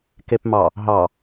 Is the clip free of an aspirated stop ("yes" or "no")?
yes